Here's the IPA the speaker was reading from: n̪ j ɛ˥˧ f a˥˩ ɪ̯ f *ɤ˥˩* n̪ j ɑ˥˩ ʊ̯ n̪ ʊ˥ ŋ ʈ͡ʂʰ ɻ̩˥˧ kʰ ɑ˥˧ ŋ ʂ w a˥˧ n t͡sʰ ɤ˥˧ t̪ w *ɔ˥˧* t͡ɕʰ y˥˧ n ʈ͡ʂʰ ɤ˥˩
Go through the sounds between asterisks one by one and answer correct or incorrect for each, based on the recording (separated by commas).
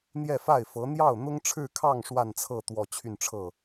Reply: incorrect, correct